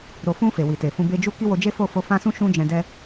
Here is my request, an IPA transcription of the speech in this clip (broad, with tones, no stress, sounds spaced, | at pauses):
ɾ o˨ f ũ˧ f e˨ w i˨ t e˨ f ũ˧ b e˧ d͡ʒ u˦ k i˦ w o˧ d͡ʒ e˦ f o˦˨ f o˧ f ã˦ s ũ˦ ʃ ũ˦ d͡ʒ ɛ̃˧ d ɛ˧